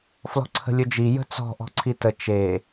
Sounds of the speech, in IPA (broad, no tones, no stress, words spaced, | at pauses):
flɔ̤ǀʰə̤lʲɵd͡ʒi jə̤t͡sɔ̤ ʔɔ̤ǀʰitə t͡ʃe